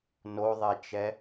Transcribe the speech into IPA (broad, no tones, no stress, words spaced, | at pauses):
noðˤɛt͡ʃɛ